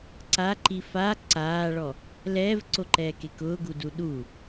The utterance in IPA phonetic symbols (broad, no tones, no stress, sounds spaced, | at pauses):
ǀ a ǃ i f a ǀ aː ɭ ɔ | l ɛː v ǀ o ǃ ɛː k e k ʊː ɡ u d u ɗ u